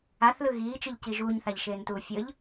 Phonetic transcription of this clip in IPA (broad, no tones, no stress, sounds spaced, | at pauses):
a θ l ɯ ɣ iː t͡ʃ ɯ ʎ c i ʒ uː ɲ θ a ʎ ʃ eː n t uː fʲ ɤ ʎ